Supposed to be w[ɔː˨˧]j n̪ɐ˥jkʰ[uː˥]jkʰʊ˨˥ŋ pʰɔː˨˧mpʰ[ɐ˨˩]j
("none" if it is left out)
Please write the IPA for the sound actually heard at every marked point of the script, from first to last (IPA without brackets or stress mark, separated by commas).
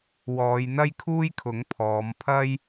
ɔː˨˧, uː˥, ɐ˥